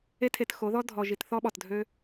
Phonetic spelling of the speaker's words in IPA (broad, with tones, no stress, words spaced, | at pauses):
e˦tʰe˧txo˨˦ðɔ˦ dʱɔ˨ʒi˨t θɔ˦ɓɔ˨tdʱø˦